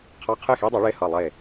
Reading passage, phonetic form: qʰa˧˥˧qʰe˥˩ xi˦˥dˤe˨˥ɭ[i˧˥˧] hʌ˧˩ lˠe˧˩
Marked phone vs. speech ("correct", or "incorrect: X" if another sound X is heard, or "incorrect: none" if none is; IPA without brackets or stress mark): incorrect: e˧˥˧